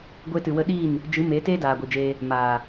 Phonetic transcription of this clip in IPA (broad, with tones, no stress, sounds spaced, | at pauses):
ɡʷ eː˧ t ɨ˨ w ə˧ ɗ i˦˨ n | d͡ʒ ɨ˨˦ m eː˨˦ t eː˦ d aː˨ ɡʷ i˨ d͡ʒ eː˧ | m aː˨